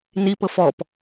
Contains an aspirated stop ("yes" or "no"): no